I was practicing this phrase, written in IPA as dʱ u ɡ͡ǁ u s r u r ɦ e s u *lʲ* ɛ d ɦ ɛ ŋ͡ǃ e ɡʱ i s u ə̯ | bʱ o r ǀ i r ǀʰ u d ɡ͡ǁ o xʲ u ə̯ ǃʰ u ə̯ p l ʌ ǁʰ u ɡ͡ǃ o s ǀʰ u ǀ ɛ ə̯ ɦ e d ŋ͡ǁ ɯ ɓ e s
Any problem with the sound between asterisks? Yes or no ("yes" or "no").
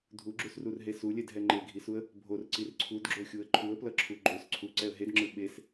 no